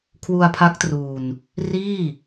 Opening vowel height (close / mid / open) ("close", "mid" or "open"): close